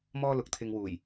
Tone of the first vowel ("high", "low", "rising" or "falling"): high